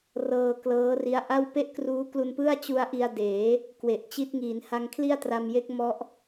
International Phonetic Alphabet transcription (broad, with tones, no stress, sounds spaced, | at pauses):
r ɤː˧ k l ɤː˦˥ r i˦˥ a̯ ʔ a˥˩ w p e˥˩ ʔ k r uː˦˥ k l u˧ n p ɯ˥˩ a̯ t͡ɕ u˦˥ a̯ ʔ i˧ a̯ d eː˩˦ | k w e˨˩ ʔ t͡ɕ i˦˥ t̚ ŋ iː˩˦ n h a˧ ŋ kʰ l i˥˩ a̯ t r a˧ m j e˦˥ k̚ m ɔ˦˥ ʔ